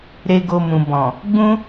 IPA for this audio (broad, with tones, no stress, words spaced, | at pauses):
ɾe˦ɡo˦mũ˧ bɔ̃˨ | ɡ͡bũ˦